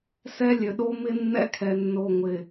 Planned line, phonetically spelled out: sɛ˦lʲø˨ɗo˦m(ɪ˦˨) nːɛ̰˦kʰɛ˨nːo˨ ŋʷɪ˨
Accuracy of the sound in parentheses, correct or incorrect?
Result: incorrect